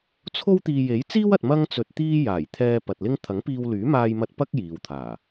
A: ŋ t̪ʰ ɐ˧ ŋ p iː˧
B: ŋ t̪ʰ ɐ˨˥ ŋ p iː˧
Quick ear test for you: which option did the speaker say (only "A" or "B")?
B